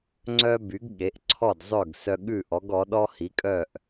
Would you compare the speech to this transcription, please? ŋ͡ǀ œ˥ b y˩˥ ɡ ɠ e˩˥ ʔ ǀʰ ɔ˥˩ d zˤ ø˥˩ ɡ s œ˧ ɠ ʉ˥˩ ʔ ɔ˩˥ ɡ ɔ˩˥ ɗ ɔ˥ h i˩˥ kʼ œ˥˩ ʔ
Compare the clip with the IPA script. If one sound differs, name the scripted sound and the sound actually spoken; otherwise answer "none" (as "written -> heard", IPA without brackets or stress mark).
none